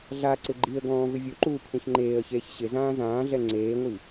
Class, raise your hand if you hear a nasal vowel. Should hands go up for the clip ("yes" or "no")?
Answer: yes